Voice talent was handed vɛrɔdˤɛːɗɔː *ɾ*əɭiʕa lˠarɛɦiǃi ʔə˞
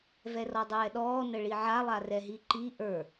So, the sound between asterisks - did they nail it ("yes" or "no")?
no